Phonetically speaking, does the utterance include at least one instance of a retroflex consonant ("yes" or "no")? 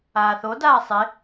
no